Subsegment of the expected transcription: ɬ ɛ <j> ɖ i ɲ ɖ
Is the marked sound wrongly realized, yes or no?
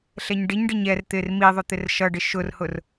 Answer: yes